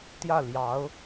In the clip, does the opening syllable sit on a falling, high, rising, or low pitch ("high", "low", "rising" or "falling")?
falling